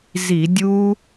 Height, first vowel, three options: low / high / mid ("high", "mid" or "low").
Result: high